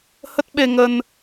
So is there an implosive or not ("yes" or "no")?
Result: yes